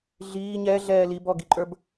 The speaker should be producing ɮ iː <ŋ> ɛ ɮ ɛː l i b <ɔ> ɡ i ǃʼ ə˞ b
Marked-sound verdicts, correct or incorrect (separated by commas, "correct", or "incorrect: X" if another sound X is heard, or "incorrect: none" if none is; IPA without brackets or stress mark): incorrect: ɲ, correct